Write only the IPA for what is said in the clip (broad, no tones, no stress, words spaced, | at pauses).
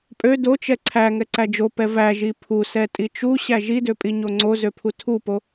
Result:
pʼø dot͡ʃɛ ǀʰæ ŋɛǀæd͡ʒopɛ væʒi pʰusɛ tʼit͡ʃuɕæ ʒidø pʼiɲoŋ͡ǀozø pʰutʰupo